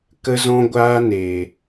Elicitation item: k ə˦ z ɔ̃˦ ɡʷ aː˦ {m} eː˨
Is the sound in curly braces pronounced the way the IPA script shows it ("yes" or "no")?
no